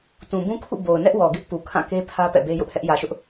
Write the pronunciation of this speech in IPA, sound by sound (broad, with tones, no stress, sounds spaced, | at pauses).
t ũ˨ b ũ˦ kʰ ṵ˦˨ b o˨ ʊ̯ n ɛ˦ ʔ w ɔ˨ ɡ ɪ˦ ʔ p u˨ kʰ ã˦˨ k e˦ pʰ ä˦ p ɛ̰˦˨ b e˦ j ʊ˦ ʔ h ɛ˦ ʔ j ä˨ ʃ ʊ˦ ʔ